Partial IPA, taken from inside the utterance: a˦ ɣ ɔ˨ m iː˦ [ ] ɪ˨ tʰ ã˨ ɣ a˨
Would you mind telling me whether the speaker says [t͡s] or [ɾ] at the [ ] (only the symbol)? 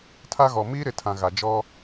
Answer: ɾ